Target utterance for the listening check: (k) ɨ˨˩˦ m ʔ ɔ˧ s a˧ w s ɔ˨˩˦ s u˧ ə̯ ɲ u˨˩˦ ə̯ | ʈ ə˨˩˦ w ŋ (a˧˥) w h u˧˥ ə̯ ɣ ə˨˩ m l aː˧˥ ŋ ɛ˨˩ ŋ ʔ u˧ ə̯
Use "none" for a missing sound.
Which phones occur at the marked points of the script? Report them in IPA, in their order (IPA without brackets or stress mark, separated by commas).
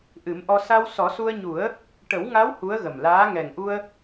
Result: ʔ, a˧˥